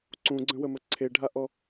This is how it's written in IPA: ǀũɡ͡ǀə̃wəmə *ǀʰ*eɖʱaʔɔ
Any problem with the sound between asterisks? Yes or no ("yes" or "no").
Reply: no